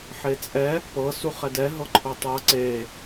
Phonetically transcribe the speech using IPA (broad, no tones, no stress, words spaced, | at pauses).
ħet͡sʼɛ | pɤ suχɛdɛ ɦɤǃʰotˤɤ ǀe